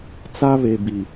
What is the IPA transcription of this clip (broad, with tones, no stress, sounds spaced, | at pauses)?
t͡s a˦ β e˨ b i˨